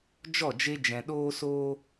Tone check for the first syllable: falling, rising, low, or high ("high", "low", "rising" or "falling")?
falling